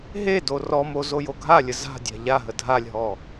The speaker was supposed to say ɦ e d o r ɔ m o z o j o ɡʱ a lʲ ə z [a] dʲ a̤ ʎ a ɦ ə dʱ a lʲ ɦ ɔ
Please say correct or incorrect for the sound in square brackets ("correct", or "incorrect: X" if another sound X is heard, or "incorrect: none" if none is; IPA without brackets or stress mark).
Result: incorrect: a̤